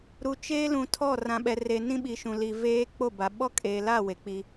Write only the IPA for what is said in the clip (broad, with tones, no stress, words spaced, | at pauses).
ɾu˨t͡ʃeː˦ lũ˨tʰɔ˦˨ rã˨ɓɛ˨re˨ nĩ˦ɓi˨ʃũ˨li˨ veː˦ k͡po˦˨ba˨ ɓɔ˦kʼe˨la˦˨ we˨k͡pi˦